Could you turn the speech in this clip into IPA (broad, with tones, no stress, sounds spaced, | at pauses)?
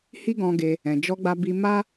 h i˦ ɡ ɔ̃˧ ɡ e˧ | ɛ̃˨ d͡ʒ ɔ˧ ɡ͡b a˧ b i˧ m a˦